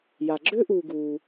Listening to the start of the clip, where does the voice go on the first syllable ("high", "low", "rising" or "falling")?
low